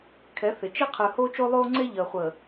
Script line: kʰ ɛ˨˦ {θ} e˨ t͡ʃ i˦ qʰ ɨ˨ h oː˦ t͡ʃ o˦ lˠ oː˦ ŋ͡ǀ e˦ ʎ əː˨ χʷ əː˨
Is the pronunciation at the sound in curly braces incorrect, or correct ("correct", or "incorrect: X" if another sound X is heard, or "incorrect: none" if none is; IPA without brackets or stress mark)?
correct